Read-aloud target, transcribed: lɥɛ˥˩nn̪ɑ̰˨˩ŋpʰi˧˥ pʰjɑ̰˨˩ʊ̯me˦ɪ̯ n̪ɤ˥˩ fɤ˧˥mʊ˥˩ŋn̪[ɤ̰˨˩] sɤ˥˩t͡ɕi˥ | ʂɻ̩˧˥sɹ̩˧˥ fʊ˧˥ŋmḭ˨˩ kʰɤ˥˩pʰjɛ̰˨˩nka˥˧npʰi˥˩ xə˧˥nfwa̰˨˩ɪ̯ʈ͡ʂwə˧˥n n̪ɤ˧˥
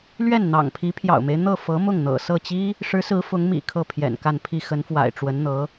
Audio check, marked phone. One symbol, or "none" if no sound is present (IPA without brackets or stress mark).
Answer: ɤ̰˨˩